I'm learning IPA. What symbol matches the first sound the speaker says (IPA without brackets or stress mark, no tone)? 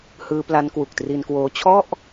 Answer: h